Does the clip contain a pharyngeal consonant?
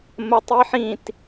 yes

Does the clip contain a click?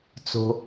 no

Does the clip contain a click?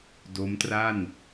no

